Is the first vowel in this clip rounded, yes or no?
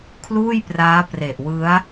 yes